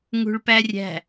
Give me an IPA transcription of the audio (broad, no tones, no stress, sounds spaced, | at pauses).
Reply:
ŋ ṳ ɭ p æ rʲ æ̤